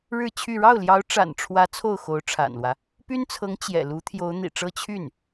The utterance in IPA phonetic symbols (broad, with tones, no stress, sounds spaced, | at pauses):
ɻ ɻ̩˥˧ t͡ɕʰ y˥˧ ɻ ɑ˥˩ ʊ̯ l j ɑ˧˥ ʊ̯ ʈ͡ʂ a̰˨˩ n ʈ͡ʂʰ w ä˧˥ t͡sʰ o˥˩ ʊ̯ x o˧˥ ʊ̯ ʈ͡ʂʰ a̰˨˩ n l w ä˦ | p y˥ n t͡sʰ ɤ˧˥ ŋ t͡ɕ j ɛ̰˨˩ l u˧˥ t̪ʰ j o˧˥ ʊ̯ n̪ ḭ˨˩ ʈ͡ʂ ɤ˥ t͡ɕʰ y˥˩ n